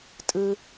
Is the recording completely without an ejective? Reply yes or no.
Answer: no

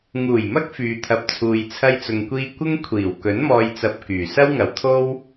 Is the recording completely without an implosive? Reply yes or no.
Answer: yes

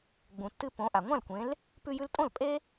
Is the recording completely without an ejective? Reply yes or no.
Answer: no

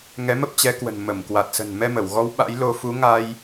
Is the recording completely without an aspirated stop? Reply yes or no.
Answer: yes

